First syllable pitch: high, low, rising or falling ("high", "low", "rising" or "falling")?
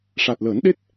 low